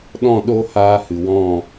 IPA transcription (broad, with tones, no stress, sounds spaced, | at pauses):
ɗ ɔ̃˦˨ ɗ o˦ h aː˧ h ɨ˨ w ɔ̃˦˨